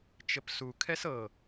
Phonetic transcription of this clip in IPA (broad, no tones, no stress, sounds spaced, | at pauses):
t͡ʃ ə p s u kʰ ɛ s ɤ